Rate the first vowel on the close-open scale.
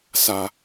open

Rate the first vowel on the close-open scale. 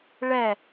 mid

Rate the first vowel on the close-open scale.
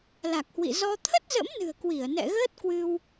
open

